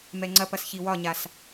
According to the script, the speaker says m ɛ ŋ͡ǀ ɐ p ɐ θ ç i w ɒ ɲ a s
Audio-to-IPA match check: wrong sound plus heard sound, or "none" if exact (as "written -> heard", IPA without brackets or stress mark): θ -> s